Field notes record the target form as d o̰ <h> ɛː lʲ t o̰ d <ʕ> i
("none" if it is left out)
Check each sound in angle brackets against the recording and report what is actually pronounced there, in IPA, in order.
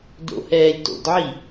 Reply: h, ʕ

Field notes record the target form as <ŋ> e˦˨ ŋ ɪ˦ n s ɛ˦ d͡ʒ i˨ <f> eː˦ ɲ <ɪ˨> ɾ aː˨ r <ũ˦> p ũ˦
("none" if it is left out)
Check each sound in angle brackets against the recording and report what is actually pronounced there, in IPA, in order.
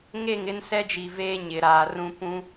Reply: ŋ, v, ɪ˨, ũ˦

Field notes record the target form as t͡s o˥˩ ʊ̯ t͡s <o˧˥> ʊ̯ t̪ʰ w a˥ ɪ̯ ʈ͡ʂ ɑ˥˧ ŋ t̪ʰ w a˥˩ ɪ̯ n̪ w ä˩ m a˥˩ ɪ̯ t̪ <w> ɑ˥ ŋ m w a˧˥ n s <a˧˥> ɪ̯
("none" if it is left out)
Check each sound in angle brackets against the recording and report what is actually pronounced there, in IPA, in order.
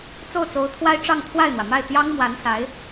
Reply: o˧˥, j, a˧˥

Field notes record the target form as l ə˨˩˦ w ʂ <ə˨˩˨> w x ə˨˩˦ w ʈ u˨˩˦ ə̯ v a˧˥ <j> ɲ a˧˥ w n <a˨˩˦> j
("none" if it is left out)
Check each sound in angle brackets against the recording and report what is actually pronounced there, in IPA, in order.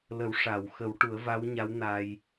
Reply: a˨˩˨, w, a˧

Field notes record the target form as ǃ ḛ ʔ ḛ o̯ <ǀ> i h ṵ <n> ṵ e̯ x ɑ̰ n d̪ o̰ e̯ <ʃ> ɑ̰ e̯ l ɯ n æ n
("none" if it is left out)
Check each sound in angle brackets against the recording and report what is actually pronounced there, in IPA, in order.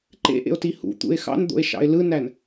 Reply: t, t̪, ʃ

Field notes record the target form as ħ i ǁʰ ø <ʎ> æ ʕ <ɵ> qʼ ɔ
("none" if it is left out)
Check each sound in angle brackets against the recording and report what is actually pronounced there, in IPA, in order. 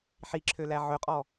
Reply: l, ɵ

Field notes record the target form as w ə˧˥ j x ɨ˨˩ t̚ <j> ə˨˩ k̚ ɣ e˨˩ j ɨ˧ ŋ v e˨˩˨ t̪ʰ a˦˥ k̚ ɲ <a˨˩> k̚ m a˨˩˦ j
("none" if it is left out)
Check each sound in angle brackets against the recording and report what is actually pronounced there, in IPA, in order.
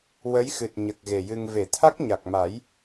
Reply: ɲ, a˨˩

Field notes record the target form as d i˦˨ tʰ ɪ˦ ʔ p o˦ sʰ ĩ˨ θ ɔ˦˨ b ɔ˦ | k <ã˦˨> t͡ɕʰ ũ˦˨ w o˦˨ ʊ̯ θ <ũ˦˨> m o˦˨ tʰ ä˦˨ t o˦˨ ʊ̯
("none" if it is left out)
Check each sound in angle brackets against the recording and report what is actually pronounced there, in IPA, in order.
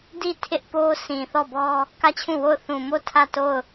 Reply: ä˦˨, ũ˨

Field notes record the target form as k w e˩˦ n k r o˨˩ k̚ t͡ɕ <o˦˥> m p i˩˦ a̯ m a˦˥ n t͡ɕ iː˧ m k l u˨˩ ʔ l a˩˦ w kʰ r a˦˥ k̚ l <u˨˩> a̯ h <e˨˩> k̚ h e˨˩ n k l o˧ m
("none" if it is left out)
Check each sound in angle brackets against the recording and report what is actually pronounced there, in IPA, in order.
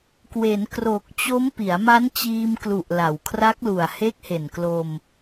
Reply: o˦˥, u˨˩, e˦˥

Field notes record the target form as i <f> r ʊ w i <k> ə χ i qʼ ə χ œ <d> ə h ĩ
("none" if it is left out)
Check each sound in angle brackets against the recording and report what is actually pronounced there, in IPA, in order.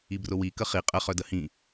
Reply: b, k, d

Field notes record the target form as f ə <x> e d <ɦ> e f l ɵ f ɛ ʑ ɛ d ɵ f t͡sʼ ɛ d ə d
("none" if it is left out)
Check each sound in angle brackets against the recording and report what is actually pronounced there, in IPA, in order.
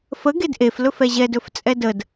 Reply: ɡ, ʔ

